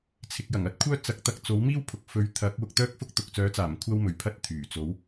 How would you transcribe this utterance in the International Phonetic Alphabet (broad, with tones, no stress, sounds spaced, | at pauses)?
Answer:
t͡sʰ ɪ˧ k̚ j ɐ˨˩ ŋ ɐ˥ t̚ kʷʰ œː˥ t͡s ɐ˨˥ k̚ t̪ ɐ˧ k̚ t͡s o˨˥ w m iː˥ w pʰ ʊ˨ k̚ f ɵ˨˧ ɥ t̪ʰ ɐ˨˥ k̚ w ʊ˧ k̚ t̪ œː˥ k̚ f ʊ˥ k̚ t̪ ʊ˨ k̚ t͡s œː˨˥ t͡s aː˨˩ m kʷʰ ɐ˥ w m ɵ˨ ɥ pʰ ɐ˥ t̚ t̪ʰ yː˨˩ t͡s o˨˥ w